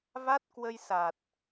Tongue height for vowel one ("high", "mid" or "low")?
low